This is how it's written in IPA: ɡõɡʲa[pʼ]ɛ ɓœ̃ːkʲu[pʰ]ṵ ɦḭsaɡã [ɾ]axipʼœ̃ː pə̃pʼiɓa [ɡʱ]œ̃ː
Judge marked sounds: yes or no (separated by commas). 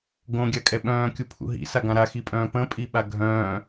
no, yes, yes, yes